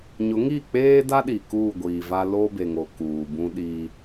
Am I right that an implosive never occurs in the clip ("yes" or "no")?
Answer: no